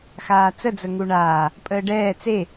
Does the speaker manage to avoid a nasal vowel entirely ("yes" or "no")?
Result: yes